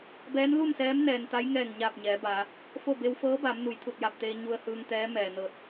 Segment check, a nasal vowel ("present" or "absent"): absent